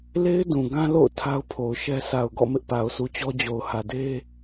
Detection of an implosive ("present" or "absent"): absent